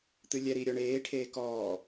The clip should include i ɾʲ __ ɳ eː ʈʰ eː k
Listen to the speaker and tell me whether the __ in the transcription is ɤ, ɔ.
ɔ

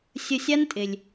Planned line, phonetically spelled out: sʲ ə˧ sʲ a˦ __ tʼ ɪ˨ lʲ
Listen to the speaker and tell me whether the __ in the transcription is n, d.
n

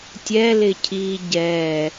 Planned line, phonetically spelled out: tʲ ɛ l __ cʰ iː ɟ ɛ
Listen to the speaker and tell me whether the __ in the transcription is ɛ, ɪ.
ɪ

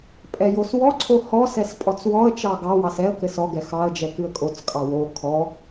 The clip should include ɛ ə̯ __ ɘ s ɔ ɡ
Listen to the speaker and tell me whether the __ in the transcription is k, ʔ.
k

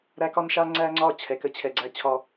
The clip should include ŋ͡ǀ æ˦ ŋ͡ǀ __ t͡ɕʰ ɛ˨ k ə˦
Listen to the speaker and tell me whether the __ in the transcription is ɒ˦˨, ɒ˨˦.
ɒ˦˨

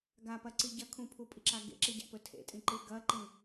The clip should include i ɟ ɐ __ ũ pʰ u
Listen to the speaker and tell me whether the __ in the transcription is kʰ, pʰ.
kʰ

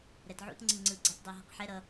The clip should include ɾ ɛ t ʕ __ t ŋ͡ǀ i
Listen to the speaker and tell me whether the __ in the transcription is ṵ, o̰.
ṵ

